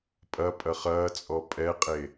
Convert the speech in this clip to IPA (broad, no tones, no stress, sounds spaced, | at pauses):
pʼ ɐ pʼ ɐ χ ɐː t͡sʼ ɔ pʼ ɛ qʼ e